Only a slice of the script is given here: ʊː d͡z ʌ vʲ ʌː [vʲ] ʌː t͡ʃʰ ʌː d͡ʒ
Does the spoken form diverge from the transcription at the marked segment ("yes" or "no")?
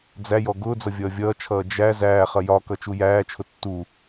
no